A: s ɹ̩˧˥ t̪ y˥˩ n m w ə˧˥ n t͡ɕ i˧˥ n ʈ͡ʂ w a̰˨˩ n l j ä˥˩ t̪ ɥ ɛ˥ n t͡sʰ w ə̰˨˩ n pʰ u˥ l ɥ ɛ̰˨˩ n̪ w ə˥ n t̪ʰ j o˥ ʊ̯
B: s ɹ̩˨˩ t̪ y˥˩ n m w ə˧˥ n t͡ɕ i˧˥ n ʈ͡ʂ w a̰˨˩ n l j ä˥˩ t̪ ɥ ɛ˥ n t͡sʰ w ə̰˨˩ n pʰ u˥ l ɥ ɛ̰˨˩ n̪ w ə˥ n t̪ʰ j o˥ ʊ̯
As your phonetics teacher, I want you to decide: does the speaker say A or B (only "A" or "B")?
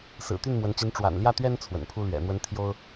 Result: B